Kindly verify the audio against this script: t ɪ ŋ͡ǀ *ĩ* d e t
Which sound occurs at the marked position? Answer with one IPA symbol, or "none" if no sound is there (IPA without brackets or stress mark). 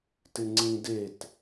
ĩ